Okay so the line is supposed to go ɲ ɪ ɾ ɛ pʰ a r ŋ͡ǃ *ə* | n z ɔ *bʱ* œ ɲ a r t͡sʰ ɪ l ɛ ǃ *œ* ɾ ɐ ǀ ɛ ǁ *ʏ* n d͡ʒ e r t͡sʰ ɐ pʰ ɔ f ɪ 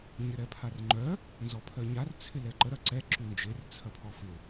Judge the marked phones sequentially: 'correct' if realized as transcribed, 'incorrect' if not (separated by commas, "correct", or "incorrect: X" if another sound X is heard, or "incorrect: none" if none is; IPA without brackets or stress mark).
incorrect: œ, incorrect: pʰ, incorrect: ə, incorrect: y